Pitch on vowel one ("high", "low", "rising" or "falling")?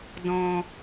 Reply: low